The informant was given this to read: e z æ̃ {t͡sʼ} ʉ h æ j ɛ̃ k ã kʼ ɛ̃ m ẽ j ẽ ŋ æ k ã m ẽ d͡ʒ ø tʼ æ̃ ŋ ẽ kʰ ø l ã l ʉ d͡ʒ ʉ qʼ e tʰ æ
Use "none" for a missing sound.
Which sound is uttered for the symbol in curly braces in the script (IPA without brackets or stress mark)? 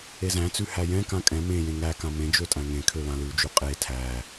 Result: t͡s